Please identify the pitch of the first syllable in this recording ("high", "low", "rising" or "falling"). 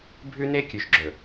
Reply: high